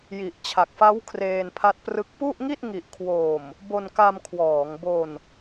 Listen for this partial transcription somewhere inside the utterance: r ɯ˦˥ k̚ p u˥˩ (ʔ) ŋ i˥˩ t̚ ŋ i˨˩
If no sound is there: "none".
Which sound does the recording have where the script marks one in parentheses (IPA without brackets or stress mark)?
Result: ʔ